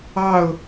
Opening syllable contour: falling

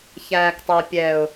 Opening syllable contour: low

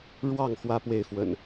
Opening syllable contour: falling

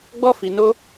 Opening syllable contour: high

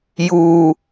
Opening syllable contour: high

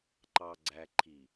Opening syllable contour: low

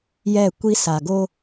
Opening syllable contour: falling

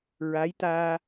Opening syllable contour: rising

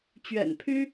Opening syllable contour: low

